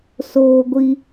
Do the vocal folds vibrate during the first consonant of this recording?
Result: no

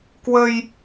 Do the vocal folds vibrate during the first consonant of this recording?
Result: no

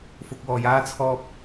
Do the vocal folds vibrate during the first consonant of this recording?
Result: no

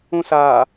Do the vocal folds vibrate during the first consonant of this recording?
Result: no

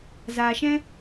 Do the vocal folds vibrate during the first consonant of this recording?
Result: yes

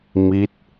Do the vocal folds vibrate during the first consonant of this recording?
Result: yes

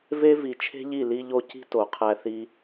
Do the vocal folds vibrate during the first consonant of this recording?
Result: yes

